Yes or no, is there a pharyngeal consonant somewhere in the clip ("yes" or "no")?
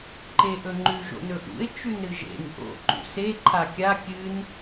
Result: no